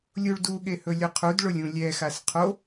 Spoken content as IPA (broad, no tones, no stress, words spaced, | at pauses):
lʲuɭduɠe hɵlʲʊqʰudɭʊlʲ ũlʲɛxas qʰo